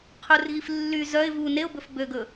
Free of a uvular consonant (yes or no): no